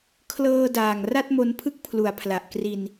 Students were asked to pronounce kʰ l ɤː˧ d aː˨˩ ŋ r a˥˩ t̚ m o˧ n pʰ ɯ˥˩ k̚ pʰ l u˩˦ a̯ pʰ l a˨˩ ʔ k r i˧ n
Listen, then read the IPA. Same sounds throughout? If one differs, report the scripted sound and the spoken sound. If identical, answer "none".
none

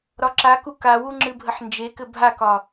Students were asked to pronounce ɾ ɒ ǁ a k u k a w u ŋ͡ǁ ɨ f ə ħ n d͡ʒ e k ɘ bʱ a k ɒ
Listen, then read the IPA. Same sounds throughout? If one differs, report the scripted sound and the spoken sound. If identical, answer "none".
f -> bʱ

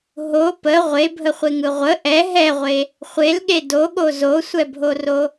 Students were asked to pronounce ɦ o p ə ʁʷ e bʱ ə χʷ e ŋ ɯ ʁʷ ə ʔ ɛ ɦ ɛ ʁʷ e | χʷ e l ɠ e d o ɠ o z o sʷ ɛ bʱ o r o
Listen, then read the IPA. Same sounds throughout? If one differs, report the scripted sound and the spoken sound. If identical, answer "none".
none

